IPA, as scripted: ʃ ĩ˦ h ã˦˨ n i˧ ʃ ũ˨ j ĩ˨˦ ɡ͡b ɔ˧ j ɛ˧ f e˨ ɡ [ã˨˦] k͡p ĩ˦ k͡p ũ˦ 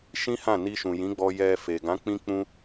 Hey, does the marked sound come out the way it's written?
yes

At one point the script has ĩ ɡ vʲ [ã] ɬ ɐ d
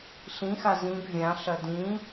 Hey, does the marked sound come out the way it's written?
yes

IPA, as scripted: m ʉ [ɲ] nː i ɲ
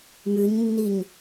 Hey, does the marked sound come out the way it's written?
yes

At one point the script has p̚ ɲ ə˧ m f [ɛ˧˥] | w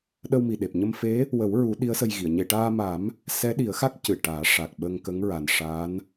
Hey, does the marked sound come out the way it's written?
no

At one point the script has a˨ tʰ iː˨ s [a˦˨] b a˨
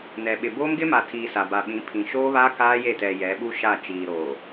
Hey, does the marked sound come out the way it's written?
no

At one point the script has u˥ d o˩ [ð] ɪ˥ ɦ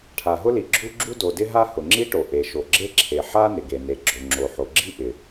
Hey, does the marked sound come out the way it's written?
no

